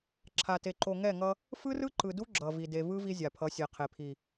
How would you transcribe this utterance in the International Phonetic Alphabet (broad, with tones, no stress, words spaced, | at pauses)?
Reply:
ǁʰa˨te˨ǃo˨ ŋɛ˦˨ŋʌ˦ | fɯ˦rɯ˦ǃɯ˨du˦ ɡ͡ǁʌ˨ vi˨de˨vɯ˦ vi˦zʲa˨pʰʌ˨˦sʲe˨ qʰe˨pʰi˨